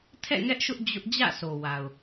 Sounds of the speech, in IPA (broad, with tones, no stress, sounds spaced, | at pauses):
tʰ ɛ̰˦˨ ŋ ɛ˦ ʔ ʃ ʊ˦ ʔ d͡ʑ ʊ˦ ʔ d͡ʑ ä̰˦˨ s o˨ w a˨ ʊ̯